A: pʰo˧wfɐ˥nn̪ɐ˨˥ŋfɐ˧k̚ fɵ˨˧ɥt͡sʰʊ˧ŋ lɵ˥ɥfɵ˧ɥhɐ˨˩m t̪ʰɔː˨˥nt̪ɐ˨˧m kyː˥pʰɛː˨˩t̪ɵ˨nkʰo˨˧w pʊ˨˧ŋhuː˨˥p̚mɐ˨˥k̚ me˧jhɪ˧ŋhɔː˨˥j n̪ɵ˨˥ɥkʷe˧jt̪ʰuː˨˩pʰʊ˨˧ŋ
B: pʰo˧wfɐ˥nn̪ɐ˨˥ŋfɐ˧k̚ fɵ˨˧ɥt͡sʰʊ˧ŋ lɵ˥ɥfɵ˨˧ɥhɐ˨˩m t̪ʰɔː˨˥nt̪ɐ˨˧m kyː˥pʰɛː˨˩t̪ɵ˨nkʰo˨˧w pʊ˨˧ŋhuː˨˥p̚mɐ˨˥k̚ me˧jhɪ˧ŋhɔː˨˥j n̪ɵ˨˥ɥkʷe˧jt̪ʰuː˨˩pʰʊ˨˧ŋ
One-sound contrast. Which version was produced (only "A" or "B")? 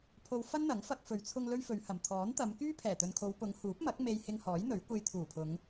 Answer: B